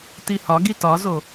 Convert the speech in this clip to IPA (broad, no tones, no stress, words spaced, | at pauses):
tihɒɡi tɒzo